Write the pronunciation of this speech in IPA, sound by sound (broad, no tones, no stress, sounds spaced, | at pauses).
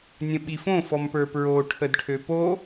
nʲ ə̃ ɓ i f õ f ɔ m p ə˞ p ɹ o ʈʰ ə d ʈʰ ø p o